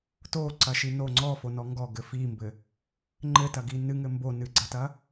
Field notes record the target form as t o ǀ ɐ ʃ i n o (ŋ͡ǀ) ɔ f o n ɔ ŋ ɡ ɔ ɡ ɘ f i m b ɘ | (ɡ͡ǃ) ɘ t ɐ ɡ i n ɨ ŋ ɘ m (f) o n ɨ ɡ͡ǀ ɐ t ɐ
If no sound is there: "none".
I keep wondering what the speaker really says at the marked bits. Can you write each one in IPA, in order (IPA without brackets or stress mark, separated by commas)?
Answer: ŋ͡ǀ, ŋ͡ǃ, b